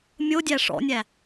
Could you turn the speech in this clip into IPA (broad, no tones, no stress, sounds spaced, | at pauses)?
mʲ o dʲ æ ʂ ɔ̰ nʲ æ